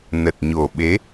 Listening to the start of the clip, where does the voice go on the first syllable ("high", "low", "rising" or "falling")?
low